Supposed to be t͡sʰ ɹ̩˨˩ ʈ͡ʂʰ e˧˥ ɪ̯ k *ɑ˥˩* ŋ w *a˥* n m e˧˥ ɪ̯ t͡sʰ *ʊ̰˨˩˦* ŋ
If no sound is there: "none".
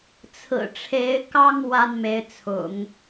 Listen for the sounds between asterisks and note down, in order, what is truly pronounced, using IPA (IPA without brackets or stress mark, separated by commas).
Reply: ɑ˥, a˥, ʊ̰˨˩˦